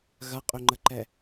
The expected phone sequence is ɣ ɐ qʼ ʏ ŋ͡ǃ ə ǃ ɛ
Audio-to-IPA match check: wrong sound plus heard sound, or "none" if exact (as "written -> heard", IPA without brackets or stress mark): none